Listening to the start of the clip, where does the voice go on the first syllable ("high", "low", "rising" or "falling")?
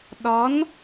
rising